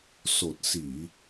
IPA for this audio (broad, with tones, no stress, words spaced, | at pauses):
so˨˩t̚ si˨˩˨